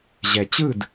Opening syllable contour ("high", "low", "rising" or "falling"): low